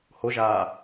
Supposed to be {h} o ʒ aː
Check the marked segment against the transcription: correct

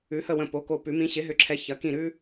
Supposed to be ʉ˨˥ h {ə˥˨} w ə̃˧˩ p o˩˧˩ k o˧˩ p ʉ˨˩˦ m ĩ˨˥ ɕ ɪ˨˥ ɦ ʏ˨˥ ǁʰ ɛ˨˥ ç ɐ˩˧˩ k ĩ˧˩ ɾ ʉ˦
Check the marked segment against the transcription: correct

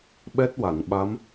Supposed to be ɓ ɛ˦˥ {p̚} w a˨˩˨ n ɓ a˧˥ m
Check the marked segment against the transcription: incorrect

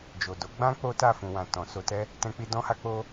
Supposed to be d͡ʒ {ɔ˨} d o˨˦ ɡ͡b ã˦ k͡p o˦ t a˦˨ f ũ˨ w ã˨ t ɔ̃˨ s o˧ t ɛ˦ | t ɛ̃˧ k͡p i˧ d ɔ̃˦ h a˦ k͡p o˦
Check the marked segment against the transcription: incorrect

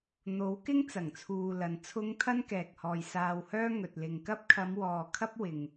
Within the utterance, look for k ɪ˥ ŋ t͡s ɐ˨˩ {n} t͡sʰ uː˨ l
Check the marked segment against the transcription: incorrect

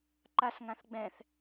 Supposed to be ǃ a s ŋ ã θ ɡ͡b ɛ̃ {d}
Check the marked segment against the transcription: incorrect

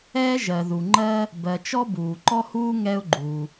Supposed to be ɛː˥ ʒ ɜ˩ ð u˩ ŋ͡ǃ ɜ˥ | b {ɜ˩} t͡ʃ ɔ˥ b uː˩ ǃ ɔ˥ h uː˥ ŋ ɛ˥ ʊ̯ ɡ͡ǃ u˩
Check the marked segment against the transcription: correct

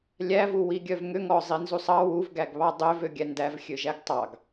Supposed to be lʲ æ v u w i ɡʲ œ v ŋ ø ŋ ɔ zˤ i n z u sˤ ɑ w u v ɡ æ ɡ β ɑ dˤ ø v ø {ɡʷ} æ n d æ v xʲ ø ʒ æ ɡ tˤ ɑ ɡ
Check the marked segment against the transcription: incorrect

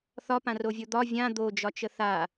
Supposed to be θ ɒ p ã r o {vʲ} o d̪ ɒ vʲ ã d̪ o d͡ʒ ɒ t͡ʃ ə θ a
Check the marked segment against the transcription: correct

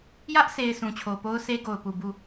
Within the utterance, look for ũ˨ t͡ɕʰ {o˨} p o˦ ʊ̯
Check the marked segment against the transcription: correct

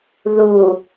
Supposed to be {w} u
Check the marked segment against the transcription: incorrect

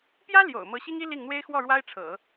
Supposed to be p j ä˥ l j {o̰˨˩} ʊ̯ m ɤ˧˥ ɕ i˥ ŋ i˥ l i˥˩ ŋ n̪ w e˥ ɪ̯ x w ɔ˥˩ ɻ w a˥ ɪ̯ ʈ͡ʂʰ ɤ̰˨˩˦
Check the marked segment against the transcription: correct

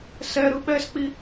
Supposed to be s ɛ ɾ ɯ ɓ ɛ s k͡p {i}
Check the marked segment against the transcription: correct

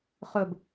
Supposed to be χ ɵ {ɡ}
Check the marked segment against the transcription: incorrect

